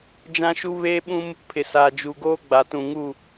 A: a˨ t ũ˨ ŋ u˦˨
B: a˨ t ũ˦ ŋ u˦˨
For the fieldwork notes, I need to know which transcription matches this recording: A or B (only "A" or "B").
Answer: A